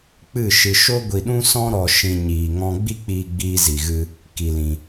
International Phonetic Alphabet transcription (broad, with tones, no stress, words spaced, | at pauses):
k͡pɨ˦˨ʃɨ˧ ʃo˦ɡʷi˧ɗũ˦sɔ̃˦ ɾɔ˧ ʃĩ˧ ɲiː˧ŋɔ̃˦ ɡ͡bi˦k͡piː˧ ɡ͡biː˧zi˨ɣɨ˧ | ki˧lĩ˧